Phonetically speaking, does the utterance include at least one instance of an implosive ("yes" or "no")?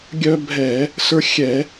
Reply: no